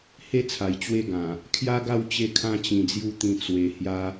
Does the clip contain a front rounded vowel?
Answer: no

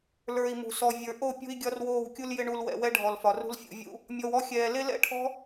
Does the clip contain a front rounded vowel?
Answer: no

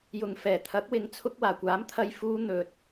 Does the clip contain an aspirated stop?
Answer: yes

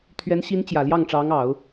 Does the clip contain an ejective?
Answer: no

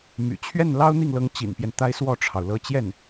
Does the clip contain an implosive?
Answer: no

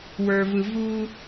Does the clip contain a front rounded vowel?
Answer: no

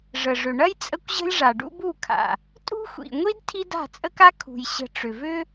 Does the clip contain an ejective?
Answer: yes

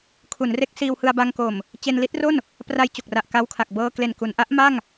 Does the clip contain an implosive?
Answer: no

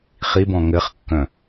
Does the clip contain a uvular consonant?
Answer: yes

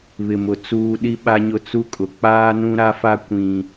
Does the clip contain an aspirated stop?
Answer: no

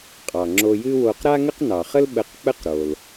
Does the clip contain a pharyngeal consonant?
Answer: no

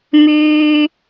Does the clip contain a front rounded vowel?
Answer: yes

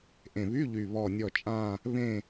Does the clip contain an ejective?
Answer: yes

